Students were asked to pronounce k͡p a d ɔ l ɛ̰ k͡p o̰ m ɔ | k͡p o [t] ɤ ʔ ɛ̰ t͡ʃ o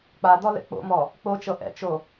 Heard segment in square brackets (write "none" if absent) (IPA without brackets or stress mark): t͡ʃ